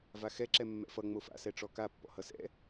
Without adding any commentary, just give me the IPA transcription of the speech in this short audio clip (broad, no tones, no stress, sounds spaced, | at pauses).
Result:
v a x ɛ ǁ ɛ mː ɛ̰ f ʌ ŋ͡m o f a̰ s ɛ ʈ͡ʂ ɔ k a pː ɔ̰ h ʌ s ɛ̰